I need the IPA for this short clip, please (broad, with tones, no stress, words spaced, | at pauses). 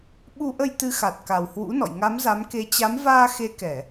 ɓu˧ʔə˧j t̪ɨ˨˦xa˨˩t̚ ka˨˩whwṵ˧˥nɔ̰˧˨j ŋa˨˦mza˨˦mke˨˦ t͡ɕa˨˦mvaː˧ xe˧kɛ˧˩˨